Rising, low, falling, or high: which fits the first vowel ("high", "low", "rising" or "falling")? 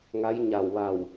rising